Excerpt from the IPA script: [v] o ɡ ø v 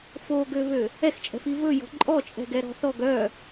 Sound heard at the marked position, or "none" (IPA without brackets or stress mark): f